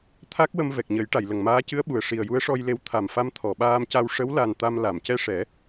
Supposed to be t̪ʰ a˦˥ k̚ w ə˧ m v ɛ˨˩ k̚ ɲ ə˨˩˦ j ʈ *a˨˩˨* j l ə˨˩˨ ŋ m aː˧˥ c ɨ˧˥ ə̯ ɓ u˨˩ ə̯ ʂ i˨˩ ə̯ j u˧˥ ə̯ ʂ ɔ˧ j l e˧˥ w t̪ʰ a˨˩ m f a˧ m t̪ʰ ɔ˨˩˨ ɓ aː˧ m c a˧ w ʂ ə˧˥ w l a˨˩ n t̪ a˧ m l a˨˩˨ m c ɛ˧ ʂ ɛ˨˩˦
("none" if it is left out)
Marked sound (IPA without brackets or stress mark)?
a˨˩˨